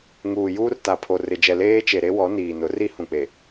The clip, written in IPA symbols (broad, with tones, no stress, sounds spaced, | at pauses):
ŋ uː˨ j uː˦ r t a˨ pʰ o˨ r ɪ˨ d͡ʒ ɛ˨ l eː˦ t͡ʃ e˨ ɾ e˦ w ɔ˨˦ n iː˨ n ʊ˨˦ r i˦ h ũ˨ k͡p e˨